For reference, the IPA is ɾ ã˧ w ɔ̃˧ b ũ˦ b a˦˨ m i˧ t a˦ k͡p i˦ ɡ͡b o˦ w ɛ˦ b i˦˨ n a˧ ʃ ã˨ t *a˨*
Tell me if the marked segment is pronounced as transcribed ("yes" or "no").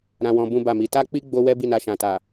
yes